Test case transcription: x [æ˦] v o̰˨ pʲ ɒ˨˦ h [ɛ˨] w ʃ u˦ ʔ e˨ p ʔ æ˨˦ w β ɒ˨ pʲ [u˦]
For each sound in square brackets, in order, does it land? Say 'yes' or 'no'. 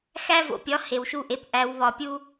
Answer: yes, no, yes

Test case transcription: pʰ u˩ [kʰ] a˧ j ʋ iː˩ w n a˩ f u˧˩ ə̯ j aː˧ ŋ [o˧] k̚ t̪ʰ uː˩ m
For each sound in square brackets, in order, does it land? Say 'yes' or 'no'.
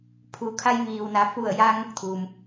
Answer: yes, yes

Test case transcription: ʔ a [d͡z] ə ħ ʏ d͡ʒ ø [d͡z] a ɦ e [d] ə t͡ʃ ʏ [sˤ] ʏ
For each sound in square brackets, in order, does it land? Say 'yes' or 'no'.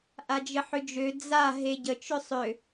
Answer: no, yes, no, yes

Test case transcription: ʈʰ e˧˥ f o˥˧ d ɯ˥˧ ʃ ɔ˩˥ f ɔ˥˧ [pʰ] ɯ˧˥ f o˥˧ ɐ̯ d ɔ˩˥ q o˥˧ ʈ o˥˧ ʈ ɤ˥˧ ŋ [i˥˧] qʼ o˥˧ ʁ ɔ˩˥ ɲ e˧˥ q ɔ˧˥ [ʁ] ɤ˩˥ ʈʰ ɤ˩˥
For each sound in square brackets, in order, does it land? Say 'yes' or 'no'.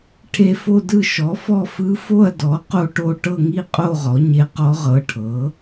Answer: no, yes, yes

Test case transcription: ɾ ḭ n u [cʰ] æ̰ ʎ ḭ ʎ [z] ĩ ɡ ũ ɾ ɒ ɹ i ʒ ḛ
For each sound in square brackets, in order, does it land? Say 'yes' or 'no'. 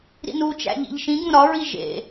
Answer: no, no

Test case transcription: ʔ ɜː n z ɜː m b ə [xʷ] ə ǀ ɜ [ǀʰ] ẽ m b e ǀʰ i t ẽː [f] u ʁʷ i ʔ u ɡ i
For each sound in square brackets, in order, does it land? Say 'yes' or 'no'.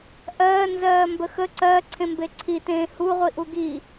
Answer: no, yes, no

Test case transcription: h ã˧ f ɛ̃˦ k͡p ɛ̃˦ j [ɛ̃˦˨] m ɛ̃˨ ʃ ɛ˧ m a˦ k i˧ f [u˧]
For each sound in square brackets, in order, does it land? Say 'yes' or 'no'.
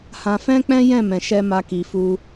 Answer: yes, no

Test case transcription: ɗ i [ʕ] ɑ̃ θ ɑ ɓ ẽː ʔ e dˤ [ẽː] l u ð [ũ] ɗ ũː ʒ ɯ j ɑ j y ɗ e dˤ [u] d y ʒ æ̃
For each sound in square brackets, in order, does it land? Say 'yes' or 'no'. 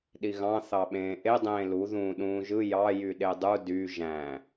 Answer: no, yes, no, yes

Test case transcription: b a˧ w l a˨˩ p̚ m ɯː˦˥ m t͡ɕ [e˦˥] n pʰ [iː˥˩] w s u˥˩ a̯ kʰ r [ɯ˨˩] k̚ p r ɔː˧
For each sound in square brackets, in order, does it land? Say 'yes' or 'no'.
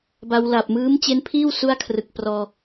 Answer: yes, yes, yes

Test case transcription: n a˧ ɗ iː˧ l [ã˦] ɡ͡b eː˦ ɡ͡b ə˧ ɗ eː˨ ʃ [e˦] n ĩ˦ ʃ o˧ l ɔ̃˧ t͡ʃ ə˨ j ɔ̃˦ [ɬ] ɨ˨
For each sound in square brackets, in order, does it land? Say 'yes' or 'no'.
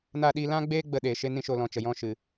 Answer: yes, yes, no

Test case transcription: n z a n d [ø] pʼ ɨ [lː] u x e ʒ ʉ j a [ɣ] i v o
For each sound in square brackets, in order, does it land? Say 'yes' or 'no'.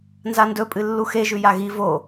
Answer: no, yes, yes

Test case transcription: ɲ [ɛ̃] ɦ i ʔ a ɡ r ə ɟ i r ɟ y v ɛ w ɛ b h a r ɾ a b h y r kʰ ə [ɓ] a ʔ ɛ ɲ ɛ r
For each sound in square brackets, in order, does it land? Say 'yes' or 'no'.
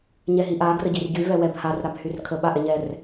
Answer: no, yes

